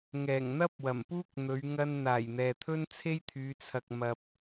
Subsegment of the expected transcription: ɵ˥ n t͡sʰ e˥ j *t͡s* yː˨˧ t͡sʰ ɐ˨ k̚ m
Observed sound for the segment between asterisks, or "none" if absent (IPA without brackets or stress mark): t̪ʰ